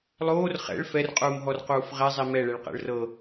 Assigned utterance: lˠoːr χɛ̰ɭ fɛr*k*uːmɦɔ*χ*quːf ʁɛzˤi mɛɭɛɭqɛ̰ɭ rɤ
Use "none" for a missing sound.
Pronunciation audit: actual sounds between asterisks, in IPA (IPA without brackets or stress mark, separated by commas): qʼ, r